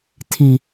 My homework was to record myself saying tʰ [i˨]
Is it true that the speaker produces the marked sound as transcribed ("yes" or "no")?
yes